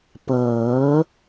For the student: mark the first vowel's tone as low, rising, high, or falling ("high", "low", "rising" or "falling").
rising